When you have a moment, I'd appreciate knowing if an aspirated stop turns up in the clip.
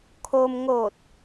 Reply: yes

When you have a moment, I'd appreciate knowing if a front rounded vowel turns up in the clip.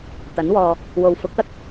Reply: no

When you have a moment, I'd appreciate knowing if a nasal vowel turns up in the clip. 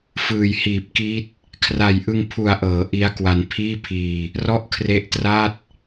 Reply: no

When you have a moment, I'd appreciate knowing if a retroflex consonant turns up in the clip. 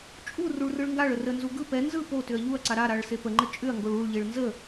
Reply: yes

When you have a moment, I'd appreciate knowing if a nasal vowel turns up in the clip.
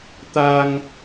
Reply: no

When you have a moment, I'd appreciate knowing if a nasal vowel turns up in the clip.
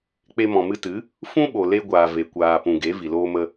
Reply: yes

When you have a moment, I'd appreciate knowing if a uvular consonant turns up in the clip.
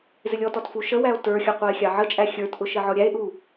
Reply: yes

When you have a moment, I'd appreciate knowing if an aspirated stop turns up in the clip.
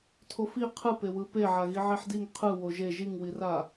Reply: yes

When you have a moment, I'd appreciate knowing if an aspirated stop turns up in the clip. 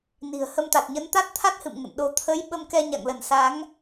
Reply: yes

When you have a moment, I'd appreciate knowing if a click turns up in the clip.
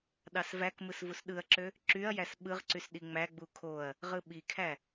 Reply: yes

